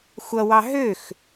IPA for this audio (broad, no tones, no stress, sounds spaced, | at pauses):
xʷ ʌ w ɑ ɦ ø x